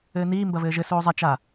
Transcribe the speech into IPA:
ɘː n iː m b ɐ v ɘː ʒ ɘ s oː zˤ ɐ t͡ʃ a

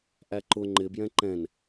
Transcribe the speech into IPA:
ʔ æ ǃ ʊ ŋ͡ǃ ɪ b j ɛ̃ ǃ ɛ̃ n

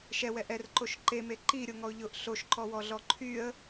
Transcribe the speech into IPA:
ʃ ɛ w ɛ ʔ ɛ r ǃ o ʃ ǃ e m e ǃ i ɾʲ o ŋ ɔ ʊ̯ ʎ ʊ ʔ ɬ o ʃ ǃ ɔ w ɔ ɮ ɔ ǃʰ y ə̯

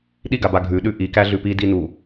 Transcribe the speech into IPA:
ɗ i ɡ a b a ɡʱ ʉ ɗ ʉ ʔ i k æ ɮ ʉ p i d i n u

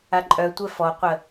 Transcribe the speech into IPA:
a ǃʼ œ tʷ ɛ f ɔ qʷ ə

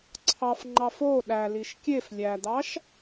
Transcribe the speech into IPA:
ǀʰ ɑ f ŋ͡ǃ ɑ f o ɗ æ l i ʃ kʲ e f lʲ æ d̪ ɑ ʃ

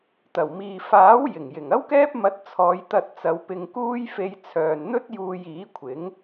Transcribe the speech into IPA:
t̪ ɐ˨˩ w m iː˨ f aː˨˥ w j ɪ˨˩ ŋ j ɪ˨˩ ŋ ɐ˥ w k ɛː˥ p̚ m ɐ˧ t̚ t͡sʰ ɔː˨˧ j t̪ ɐ˧ t̚ t͡s ɐ˨˧ w p ɪ˧ ŋ k uː˥ j f e˧ j t͡sʰ œː˨ n n̪ ɵ˥ t̚ j uː˧ j iː˨˥ kʷʰ ɪ˨˥ ŋ

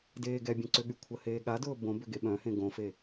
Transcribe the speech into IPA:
d eː ɡ ɛ bʲ ẽ ǀ ʏ ɠ y kʷʰ ə h eː ɠ a d ʊː b õ b ʏ ɡ e ɓ œ̃ h ẽ ɡ õ f e

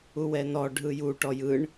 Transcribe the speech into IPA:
u w ɛ n ɔ ɖʱ ɯ j u ʈ ɔ j ɯ ɳ

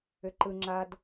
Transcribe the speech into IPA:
ʏ ǃ ɯ ŋ͡ǁ a d

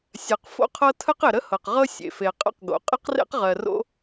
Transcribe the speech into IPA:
sʲ ɜ˩ q f o̰˥ qʰ ɤ˥ tʰ ə˥ q ɪ˩ ɾ ə˥ h ɤ˩ q ʁ ɤ˥ sʲ ḛ˩ f e˩ qʼ ə̰˥ q ɡ o̰˩ qʼ ɪ˥ q r ḛ˥ q ʁ ɜ˩ r o̰˥

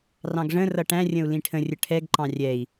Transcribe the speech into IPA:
r ɑ̃ ɡ ʐ ə̃ r ʌ ʈ æ̃ rʲ ə̃ u̯ l ĩ ʈʰ ə̃ rʲ ə ʈʰ ɛ ɡ ǃ ɑ̃ rʲ ɛ i̯

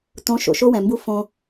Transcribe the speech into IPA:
t õ˨˦ ʃ o̰˨ ʃ o˦ w ɛ̃˨ m b u˦ f õ˦

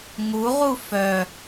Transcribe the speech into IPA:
ŋ u ʁ u f œ

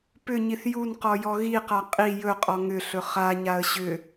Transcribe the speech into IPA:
p ʏ ɲ i θ j u n q ɔ j ɔ ɣ i q a qʼ i j ɵ qʼ ɔ ŋ ʏ ɬ ɵ χ a ɲ a ə̯ ɕ ʏ

